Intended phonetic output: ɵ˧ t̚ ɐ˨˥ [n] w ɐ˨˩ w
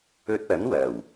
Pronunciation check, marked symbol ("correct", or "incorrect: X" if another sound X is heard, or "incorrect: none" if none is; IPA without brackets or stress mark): correct